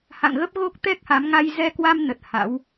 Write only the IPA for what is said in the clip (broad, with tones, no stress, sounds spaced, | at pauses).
h a̰˧˨ ŋ ɣ ə˦˥ p̚ ɣ o˦˥ k̚ t̪ ɛ˦˥ k̚ h a˨˦ m ŋ a˧ j z ɛ˧ k w a˧ m n ə˨˩ t̚ h a̰˧˥ w